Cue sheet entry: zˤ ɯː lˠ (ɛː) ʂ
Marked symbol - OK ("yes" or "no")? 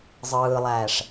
no